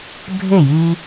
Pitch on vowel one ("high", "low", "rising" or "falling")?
falling